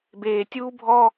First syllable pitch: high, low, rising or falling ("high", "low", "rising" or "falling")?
high